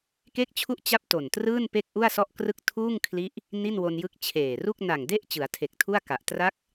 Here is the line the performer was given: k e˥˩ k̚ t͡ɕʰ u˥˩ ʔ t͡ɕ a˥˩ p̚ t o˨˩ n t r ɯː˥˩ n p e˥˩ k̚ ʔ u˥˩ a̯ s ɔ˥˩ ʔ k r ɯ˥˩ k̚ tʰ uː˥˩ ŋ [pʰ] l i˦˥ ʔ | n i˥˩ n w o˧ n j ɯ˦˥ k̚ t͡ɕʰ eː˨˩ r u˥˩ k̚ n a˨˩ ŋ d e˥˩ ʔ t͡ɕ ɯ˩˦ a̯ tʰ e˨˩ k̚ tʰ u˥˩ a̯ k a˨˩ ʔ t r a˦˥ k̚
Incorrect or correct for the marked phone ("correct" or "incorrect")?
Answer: incorrect